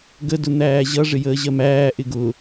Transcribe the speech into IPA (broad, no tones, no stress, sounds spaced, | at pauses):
ɡ ə d ʊ n̪ æː ʑ ʌ ʐ ɪ j əː ʑ ɜ m æː ʔ ɪ ɡ ʊ